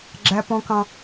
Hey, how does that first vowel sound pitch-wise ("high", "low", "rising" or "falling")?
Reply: high